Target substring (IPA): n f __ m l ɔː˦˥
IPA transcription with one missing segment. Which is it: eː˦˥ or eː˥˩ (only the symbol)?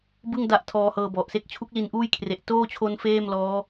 eː˥˩